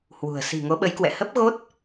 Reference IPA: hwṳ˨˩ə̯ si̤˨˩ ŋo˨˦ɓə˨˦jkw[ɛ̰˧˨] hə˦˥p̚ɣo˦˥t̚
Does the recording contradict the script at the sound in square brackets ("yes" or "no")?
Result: no